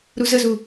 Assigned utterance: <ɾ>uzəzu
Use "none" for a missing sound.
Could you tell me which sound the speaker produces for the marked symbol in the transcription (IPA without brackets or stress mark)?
ɾ